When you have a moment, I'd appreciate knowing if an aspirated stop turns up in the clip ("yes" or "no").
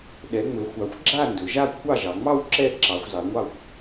yes